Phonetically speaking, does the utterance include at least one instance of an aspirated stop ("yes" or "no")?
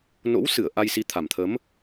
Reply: yes